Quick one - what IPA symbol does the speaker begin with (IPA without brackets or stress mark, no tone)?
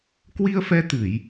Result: k